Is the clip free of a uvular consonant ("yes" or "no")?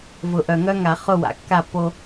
no